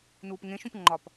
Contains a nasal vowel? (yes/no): yes